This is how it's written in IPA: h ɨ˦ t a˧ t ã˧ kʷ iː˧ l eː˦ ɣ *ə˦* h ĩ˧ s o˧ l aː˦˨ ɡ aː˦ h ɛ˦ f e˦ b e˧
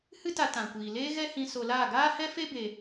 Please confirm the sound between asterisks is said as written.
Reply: no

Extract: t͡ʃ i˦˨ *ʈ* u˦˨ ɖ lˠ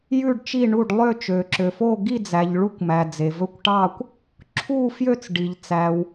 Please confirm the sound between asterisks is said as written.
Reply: no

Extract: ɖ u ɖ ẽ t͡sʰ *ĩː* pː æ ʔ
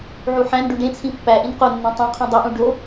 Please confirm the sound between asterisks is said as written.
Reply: no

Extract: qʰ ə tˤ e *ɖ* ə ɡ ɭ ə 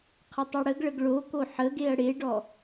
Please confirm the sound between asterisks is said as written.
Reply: no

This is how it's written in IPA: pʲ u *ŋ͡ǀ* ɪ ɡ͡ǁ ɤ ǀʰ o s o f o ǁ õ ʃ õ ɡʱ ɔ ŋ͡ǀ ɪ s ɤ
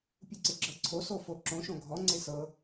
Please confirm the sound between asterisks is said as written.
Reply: no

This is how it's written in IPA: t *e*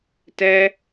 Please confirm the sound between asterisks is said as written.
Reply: no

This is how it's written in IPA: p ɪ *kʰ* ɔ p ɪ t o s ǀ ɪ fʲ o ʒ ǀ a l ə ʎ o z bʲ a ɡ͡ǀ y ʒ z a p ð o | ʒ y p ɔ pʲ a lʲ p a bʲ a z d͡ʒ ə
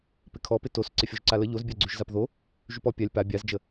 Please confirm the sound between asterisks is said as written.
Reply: yes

